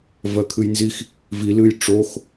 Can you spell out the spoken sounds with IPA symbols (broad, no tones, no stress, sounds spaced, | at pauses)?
v ɜ kʰ ɨ j n z i x | v i l ɨ j ʈ͡ʂ o x